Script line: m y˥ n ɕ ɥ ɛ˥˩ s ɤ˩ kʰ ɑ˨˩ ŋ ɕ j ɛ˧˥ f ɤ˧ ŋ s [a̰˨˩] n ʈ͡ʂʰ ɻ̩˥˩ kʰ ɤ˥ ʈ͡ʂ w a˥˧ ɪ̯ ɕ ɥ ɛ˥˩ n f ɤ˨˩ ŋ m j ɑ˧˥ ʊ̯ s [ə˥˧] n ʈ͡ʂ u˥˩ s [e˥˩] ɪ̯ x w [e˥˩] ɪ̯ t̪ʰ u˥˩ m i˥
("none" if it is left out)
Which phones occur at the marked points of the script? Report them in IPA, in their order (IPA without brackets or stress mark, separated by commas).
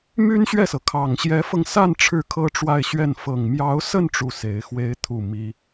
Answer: a˥˧, ə˥˧, e˧˥, e˥